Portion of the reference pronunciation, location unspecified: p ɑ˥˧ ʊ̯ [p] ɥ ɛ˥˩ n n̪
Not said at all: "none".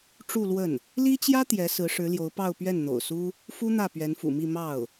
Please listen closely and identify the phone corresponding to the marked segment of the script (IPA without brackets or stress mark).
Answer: p